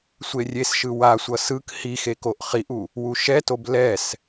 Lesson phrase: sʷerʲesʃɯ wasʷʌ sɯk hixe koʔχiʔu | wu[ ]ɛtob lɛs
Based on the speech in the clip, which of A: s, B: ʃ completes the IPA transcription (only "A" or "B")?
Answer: B